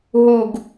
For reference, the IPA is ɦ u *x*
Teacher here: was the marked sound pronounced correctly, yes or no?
no